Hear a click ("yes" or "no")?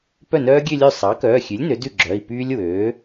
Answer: yes